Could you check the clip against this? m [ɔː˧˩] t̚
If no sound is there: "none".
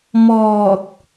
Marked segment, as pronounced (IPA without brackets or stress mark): ɔː˧˩